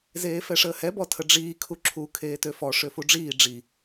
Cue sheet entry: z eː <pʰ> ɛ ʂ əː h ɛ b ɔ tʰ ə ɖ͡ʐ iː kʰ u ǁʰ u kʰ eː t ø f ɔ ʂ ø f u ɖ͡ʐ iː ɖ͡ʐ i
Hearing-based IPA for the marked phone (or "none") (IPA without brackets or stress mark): f